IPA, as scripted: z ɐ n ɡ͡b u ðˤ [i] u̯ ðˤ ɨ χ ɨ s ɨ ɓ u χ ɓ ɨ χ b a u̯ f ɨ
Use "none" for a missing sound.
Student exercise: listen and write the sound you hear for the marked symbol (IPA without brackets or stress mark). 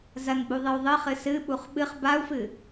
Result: ɨ